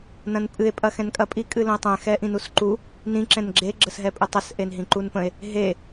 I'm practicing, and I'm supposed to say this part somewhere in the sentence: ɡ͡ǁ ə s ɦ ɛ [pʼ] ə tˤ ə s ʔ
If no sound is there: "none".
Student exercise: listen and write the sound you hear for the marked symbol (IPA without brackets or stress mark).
pʼ